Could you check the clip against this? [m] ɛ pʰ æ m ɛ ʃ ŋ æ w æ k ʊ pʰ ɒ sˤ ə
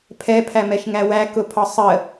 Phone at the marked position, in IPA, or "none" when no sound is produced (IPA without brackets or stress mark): pʰ